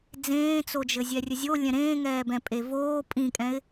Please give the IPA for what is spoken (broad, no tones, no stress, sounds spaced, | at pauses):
d͡z ẽː t͡s o d͡ʒ ɘ zʲ ɛ rʲ ɘ zʲ o lʲ ɛ̃ ɾ ẽː ŋ ɛː b ɛ̃ pʼ e v oː pʼ ĩ kʼ ɛ̃ ɪ̯